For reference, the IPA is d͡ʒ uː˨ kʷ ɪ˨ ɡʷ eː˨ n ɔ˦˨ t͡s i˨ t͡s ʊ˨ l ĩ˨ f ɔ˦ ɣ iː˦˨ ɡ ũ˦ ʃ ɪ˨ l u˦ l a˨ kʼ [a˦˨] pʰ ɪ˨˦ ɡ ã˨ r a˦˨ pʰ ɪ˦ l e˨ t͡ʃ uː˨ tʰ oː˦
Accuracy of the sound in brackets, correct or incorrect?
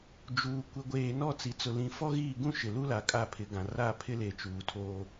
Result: correct